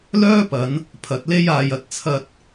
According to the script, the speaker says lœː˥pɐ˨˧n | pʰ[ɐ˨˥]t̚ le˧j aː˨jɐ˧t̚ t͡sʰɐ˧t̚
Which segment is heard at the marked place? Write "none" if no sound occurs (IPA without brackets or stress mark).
ɐ˨˥